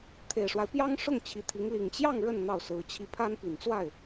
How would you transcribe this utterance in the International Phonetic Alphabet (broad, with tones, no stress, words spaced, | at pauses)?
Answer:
t̪ʰe˨˩ɪ̯ʂwa˦ɪ̯pjɑ˥ŋ ʂʊ˥˩ŋ t͡ɕʰi˧˥t̪ʰi˧˥ŋ li˨˩ŋt͡ɕjɑ˥˧ŋ ɻə˥˧n n̪ɑ˥˩ʊ̯sɹ̩˧˥t͡ɕʰi˥˩ pʰa˥npi˨˩nt͡swa˥˩ɪ̯